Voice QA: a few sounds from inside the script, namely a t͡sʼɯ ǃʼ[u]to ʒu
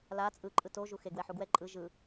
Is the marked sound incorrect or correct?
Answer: incorrect